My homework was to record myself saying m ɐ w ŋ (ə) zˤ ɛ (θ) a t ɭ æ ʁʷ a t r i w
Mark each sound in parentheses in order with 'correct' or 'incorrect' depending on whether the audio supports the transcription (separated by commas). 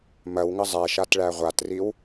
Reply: correct, incorrect